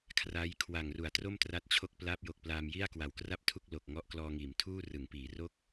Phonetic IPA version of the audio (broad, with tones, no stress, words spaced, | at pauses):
kʰraː˦˥j kʰwa˨˩ŋru˩˦a̯tro˥˩m tra˦˥t̚t͡ɕʰo˥˩k̚ plaː˦˥p̚jo˨˩k̚plaː˧m ji˥˩a̯kwa˨˩wkra˥˩p̚tʰu˥˩k̚ lo˨˩k̚ŋɔ˦˥ʔklɔː˧ŋiː˩˦m tʰuː˥˩rɯ˩˦ŋpiː˩˦ ro˥˩k̚